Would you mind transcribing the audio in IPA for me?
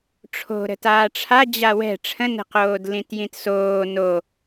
ʈ͡ʂʰ o̤ ɾ ə̤ t aː ʈ͡ʂʰ a d͡ʑ a w ɛ̤ ʈ͡ʂʰ ə̃ n ə̤ q oː d l ĩ t j ĩ t s oː n o

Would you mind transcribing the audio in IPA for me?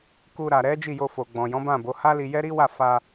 k u˧ ɾ a˨ ɾ ɛ˨˦ d͡ʒ i˦˨ j o˧ f o˨ ɡ͡b ɔ̃˨ j ɔ̃˨˦ b ã˦˨ b o˨˦ h a˦ l i˧ j ɛ˦ ɾ i˦ w a˦˨ f a˧

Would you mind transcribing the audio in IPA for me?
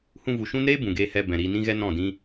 h ũ˧ v u˨ ʃ ũ˦ n ɾ eː˦ b ũ˨ ɡ eː˧ h ɛ˧ b ɛ̃˨ ɾ iː˧ n ĩ˦ ɣ ɛ˦ n ɔ̃˦˨ d ĩ˦

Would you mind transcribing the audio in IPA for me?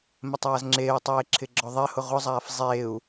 m ɛ tˤ aː z ŋ͡ǁ eː u̯ tˤ eː ǁʰ ɪ ɡ͡ǁ ɔ ðˤ ɛ h ʊ ʁ ʊ zˤ aː f zˤ eː u̯

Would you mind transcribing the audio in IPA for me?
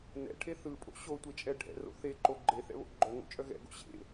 n ɛ̰ ʈʰ e θ ɯ pʼ o̰ ɕ o tʷ e t͡ʃʼ ɛ ɖʱ ɛ̰ r o̰ θ e ǃ o ɡ͡ǃ e θ ɛ̰ β o̰ ɡ͡ǃ œ ŋ o̰ t͡ʃʼ œ ɣ ɛ̰ ɡ o̰ ɕ ḛ

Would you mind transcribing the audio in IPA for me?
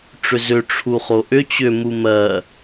ʈ͡ʂ ʏ z ʏ ʈ͡ʂʰ u χ o ʔ ʏ t͡ɕ ʏ m u m ɜ

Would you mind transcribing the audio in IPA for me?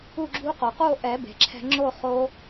u˥˧ ɡ͡ǁ u˦˥ q o˩ q o˥˧ ʔ ɛ˨˩˦ b e̤˩ ǁʰ ɛ̤˧ ŋ͡ǁ o˥˧ χ o˦˥

